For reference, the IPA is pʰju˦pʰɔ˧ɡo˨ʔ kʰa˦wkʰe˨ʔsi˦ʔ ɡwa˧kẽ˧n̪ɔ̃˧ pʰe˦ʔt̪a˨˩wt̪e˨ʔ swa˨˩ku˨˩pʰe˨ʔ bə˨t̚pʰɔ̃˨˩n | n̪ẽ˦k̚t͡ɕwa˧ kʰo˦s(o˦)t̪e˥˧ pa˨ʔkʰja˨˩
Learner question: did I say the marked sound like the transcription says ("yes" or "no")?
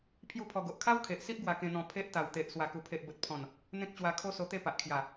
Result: no